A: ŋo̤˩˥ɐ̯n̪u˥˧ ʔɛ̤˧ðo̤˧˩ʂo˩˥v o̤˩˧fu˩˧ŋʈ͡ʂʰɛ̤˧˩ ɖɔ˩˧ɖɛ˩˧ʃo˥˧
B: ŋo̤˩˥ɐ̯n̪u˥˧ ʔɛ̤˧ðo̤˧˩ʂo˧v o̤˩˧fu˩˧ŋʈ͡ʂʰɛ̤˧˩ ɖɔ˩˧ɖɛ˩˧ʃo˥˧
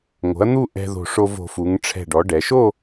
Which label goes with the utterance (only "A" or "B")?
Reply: B